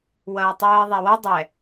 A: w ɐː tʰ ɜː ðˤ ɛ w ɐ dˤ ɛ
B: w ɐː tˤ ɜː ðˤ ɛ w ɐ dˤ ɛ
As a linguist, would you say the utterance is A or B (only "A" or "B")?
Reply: B